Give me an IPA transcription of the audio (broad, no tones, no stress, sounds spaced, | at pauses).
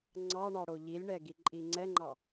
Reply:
ŋ͡ǀ ɑ ɳ ɑ ɽ o ʎ i lʲ ɳ ɛ ɡ i ǃʼ i ŋ͡ǀ ɛ ŋ͡ǃ ɑ